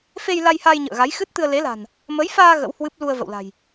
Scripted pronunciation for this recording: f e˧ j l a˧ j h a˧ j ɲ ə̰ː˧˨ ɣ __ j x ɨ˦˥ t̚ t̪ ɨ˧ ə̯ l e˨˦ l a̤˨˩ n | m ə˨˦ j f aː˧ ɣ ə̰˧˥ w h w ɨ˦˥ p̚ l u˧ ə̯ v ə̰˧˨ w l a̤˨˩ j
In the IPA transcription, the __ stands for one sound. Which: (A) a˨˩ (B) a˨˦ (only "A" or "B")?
B